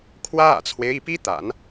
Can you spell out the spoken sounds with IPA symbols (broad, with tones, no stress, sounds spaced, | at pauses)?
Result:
kʰ w ä˥ ä̰˨˩ t͡sʰ w e˦ ɪ̯ i˥˩ p i˥ t̪ a̰˨˩˦ n